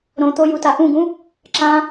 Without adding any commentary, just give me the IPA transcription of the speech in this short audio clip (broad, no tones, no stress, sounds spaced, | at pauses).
ɾ õ t̪ o j u t a ʔ ũ ɡ ũ | ǁ ã